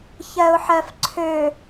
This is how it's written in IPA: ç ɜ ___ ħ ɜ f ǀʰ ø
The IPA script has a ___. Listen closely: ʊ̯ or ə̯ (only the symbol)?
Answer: ʊ̯